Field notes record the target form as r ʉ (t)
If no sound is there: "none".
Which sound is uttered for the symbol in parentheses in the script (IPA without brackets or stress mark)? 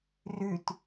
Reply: t